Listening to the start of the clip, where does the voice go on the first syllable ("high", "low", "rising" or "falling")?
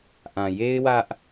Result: low